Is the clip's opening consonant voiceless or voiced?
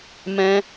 voiced